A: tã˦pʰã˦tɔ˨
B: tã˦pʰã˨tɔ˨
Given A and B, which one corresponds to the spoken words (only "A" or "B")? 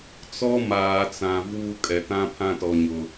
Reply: A